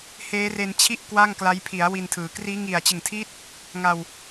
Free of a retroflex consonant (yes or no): yes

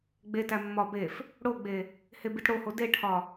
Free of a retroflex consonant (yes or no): no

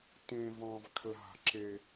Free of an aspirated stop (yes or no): no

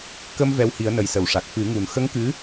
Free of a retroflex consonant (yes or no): no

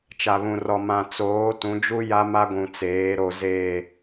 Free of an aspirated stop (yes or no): yes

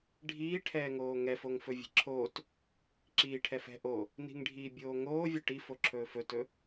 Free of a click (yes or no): no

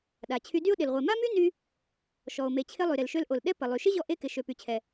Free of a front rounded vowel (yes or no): no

